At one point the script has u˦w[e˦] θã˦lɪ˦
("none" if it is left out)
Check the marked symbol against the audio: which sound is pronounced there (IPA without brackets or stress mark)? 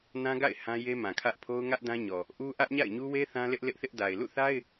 e˦